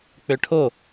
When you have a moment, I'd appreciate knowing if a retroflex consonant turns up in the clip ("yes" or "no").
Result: yes